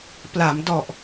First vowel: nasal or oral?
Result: oral